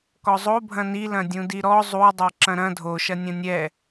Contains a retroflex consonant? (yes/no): no